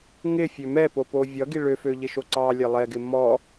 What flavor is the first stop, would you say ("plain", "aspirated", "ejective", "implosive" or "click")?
plain